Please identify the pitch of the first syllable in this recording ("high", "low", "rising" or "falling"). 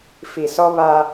low